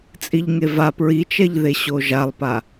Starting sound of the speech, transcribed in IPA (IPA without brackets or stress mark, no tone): t͡sʼ